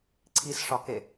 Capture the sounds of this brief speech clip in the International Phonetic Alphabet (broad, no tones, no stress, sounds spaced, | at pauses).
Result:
ǀʰ i s ʂ ɒ k e